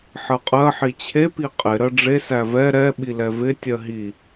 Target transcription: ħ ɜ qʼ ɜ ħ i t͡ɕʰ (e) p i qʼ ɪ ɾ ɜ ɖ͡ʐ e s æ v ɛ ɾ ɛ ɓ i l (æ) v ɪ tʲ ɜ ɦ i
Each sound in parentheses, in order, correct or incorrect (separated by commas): correct, incorrect